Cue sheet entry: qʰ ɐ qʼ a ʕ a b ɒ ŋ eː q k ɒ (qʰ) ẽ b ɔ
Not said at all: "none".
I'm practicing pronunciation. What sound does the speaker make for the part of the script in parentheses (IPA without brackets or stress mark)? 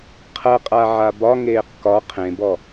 qʰ